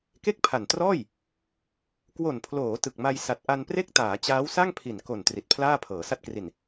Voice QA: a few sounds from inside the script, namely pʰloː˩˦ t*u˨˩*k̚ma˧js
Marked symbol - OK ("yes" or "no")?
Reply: no